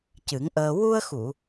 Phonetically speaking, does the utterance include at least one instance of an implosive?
no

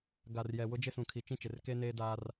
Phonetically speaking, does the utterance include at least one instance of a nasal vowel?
yes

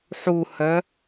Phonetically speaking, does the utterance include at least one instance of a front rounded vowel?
yes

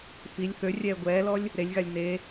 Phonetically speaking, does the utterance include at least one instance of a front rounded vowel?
yes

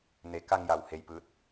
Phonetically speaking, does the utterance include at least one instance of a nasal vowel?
no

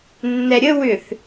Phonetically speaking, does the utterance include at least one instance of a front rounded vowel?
yes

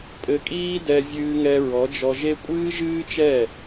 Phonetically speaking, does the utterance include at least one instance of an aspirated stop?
no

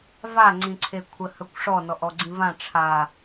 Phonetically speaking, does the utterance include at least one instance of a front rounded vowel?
yes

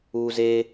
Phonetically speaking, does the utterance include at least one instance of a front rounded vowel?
no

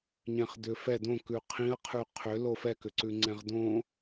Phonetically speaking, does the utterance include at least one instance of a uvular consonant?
yes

